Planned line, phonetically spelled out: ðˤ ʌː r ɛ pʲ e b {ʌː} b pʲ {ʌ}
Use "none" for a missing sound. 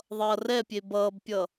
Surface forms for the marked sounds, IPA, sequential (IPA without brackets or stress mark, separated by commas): ʌː, ʌ